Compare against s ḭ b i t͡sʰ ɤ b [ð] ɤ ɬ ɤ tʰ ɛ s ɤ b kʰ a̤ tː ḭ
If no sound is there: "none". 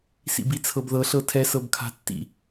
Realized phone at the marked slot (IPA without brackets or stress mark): ð